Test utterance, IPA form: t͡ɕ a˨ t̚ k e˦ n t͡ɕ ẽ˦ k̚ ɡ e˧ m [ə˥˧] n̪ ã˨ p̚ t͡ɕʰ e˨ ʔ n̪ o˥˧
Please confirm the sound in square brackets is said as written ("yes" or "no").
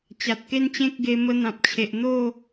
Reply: no